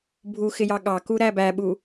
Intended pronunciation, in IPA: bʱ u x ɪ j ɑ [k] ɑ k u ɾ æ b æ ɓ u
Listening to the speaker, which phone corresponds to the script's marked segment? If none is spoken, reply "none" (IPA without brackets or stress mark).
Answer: ɠ